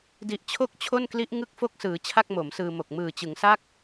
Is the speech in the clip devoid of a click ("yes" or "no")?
yes